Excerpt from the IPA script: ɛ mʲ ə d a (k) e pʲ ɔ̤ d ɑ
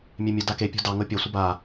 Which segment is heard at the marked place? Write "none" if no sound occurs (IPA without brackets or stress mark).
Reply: k